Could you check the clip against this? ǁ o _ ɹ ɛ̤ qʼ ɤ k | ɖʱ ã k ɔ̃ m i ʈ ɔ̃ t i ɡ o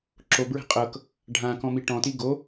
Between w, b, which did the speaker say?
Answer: b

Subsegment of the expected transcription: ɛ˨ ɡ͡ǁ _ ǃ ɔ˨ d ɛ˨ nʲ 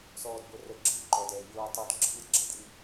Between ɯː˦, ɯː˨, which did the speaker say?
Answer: ɯː˦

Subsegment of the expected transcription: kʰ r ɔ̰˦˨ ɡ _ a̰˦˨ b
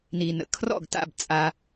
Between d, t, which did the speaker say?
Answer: t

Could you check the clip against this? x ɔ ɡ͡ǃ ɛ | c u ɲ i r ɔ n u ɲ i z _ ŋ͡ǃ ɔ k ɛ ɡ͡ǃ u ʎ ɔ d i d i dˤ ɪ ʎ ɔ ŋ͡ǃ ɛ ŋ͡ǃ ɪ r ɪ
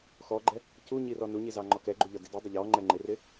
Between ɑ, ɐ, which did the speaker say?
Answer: ɑ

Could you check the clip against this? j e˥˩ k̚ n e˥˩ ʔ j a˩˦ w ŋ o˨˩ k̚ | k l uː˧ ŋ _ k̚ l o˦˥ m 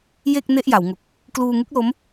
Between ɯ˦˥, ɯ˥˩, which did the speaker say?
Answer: ɯ˦˥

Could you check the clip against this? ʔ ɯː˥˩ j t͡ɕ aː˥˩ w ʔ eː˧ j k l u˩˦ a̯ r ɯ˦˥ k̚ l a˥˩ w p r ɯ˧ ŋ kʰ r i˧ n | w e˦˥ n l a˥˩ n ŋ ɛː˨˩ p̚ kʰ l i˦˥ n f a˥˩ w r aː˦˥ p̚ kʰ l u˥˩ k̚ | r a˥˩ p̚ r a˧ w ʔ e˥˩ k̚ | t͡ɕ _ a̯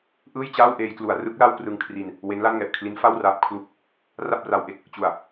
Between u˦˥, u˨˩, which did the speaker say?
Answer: u˨˩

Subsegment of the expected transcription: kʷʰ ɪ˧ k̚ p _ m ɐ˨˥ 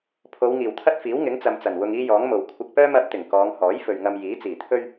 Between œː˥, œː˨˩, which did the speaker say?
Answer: œː˥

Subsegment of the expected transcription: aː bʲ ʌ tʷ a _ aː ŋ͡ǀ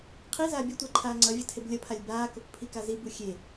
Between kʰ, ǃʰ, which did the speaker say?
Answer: ǃʰ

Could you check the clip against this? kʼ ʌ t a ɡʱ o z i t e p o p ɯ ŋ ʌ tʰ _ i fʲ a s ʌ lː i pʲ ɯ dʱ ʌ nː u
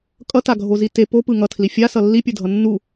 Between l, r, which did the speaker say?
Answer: l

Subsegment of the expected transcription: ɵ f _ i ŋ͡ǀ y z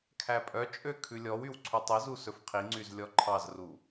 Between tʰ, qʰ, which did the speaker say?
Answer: qʰ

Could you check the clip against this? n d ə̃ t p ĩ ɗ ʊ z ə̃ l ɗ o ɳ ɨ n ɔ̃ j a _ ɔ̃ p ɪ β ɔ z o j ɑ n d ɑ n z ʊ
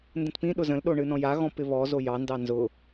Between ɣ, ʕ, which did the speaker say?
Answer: ɣ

